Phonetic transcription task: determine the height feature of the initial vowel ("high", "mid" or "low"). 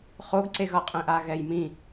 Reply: mid